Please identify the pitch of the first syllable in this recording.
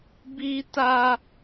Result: high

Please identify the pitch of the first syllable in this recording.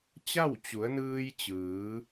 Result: falling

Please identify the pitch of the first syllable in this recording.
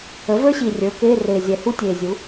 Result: rising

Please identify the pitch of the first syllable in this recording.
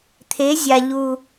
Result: rising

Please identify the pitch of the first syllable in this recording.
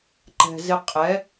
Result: low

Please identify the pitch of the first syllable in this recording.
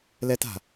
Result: high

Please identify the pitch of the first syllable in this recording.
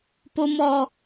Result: high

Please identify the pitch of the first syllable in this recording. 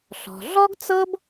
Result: low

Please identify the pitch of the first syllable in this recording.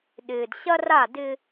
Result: low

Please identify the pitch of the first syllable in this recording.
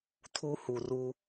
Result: high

